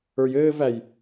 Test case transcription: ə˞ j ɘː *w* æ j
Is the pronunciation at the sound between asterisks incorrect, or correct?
incorrect